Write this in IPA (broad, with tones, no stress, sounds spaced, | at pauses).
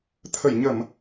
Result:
t̪ʰ ə˧˩ j ɲ ə˧˩˨ m